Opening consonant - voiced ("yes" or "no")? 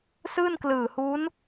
no